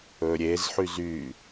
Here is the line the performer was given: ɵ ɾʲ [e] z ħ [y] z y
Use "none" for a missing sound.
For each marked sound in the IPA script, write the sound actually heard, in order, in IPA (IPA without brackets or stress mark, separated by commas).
e, y